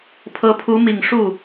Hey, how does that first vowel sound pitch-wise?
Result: rising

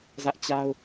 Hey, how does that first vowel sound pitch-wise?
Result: high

